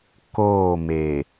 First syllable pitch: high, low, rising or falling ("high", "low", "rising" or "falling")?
falling